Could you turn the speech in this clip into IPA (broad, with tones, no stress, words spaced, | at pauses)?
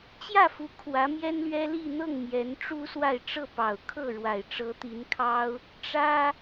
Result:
t͡ɕjä˥˩fu˧˥ kʰwä˧˥mjɛ˥nlɥɛ˥li˥˧ n̪ɤ˥˩ŋ mjɛ˧˥nʈ͡ʂu˥swa˥˧ɪ̯ ʈ͡ʂɤ˥˩pɑ˨˩ʊ̯kʰɤ˥˩ɻwa˨˩ɪ̯ ʈ͡ʂɤ˧˥t̪i˧˥nkʰɑ˥ʊ̯ | ʈ͡ʂä˥